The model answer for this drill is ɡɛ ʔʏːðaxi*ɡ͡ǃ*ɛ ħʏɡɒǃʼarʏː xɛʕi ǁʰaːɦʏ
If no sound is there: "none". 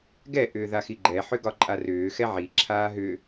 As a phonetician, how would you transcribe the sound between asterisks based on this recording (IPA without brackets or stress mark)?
ɡ͡ǃ